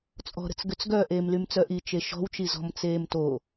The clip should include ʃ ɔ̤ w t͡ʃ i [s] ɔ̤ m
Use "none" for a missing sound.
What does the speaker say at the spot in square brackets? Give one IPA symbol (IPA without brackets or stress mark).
z